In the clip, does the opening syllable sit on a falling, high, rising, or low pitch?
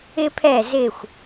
high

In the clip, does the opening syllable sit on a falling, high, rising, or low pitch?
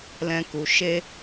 high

